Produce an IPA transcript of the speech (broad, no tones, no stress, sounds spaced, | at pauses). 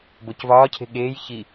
b o c v ɒː cʰ e̤ ɠ eː j ç i